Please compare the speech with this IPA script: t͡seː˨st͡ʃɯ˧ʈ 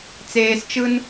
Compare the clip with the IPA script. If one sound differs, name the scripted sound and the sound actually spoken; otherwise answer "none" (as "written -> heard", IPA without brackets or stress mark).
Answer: ʈ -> n